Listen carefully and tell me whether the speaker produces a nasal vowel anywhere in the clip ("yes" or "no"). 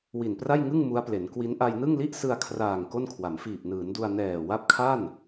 no